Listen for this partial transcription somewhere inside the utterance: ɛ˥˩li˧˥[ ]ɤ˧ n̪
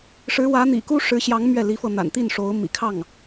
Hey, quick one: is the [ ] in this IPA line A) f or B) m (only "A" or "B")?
A